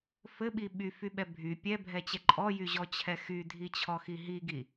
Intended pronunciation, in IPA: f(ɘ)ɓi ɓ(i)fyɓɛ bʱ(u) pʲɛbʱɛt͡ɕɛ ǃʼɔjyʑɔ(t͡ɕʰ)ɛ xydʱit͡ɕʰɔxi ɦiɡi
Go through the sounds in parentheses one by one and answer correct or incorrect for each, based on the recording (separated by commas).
correct, incorrect, incorrect, correct